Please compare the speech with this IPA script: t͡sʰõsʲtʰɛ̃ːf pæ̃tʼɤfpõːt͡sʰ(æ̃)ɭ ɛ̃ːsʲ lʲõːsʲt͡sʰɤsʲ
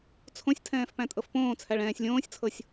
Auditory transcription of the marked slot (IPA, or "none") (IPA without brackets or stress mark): æ